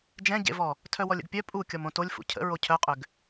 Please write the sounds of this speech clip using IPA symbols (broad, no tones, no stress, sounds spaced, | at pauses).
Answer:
d͡ʒ ɛ̃ ɟ ḛ v ɔ | tʰ œ w ɔ lʲ ə̰ ɡ pʲ œ pʼ u kʲ ɔ m õ t o lʲ f ṵ cʰ ə̰ ɹ o cʰ œ qʼ ʏ ɡ